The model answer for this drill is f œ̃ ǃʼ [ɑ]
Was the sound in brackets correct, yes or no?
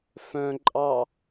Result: yes